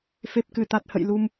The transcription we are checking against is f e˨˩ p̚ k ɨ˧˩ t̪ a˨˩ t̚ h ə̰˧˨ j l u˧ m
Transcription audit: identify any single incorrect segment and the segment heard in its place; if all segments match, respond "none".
none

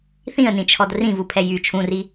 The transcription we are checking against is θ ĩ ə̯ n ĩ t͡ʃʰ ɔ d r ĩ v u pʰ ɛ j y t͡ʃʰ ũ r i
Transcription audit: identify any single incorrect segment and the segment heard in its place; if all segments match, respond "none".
none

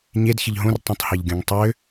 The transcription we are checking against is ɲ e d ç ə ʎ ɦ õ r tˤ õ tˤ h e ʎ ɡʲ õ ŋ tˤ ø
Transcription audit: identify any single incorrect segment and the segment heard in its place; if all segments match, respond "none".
none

